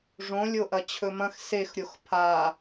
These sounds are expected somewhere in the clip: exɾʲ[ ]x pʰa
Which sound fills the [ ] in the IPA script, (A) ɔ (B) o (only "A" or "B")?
B